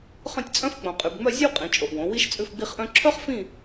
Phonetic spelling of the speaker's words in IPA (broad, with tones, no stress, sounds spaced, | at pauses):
χ œ̃˥˧ tʲ t͡sʼ œ̃˥ f k͡p õ˨ qʼ y˨ b ŋ͡m œ˥˧ zʲ ʉ˥ w qʼ ĩ˩˥ t͡ʃʼ o˨ ʔ w õ˩˥ w i˥ ʃ t͡sʼ ʉ˥˧ f ɡ͡b i˥˧ χ ʔ œ̃˥ ǁʰ œ˥ χ f ĩ˥˧